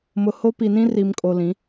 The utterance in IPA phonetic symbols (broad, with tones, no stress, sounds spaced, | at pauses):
m ʊ˨ h o˦ p i˨ n ĩ˦ r i˨ m kʼ o˨ l ĩ˨˦